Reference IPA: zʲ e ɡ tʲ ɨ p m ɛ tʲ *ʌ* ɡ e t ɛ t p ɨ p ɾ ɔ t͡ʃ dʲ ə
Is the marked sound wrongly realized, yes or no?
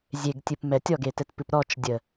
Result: yes